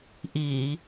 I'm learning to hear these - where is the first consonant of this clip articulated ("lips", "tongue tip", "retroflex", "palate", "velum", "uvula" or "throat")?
throat